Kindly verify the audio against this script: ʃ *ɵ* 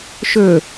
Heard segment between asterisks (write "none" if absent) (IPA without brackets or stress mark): ɵ